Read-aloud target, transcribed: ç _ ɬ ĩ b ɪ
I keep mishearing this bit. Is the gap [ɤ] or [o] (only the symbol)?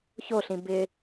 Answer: o